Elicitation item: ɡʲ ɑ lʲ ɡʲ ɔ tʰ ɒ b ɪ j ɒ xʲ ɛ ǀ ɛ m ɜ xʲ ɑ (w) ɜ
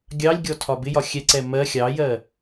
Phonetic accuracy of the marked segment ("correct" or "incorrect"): incorrect